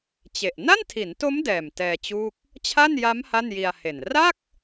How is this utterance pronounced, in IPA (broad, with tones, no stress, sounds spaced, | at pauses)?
t͡ɕ e˨˩ ʔ n a˥˩ n tʰ i˩˦ n t o˦˥ m d ɛː˨˩ m t ɛː˧ t͡ɕ uː˥˩ k̚ | t͡ɕʰ a˥˩ n j a˦˥ m h a˥˩ n j i˧ a̯ h e˨˩ n r a˥˩ k̚